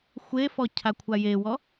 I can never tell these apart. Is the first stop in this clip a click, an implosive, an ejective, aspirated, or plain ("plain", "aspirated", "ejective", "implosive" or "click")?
aspirated